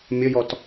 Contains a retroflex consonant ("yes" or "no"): no